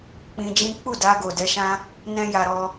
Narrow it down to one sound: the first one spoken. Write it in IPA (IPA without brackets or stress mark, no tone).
k͡p